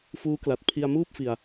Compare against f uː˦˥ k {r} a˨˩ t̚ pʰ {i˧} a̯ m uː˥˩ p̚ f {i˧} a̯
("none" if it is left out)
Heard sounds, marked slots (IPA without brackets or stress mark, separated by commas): l, i˧, i˧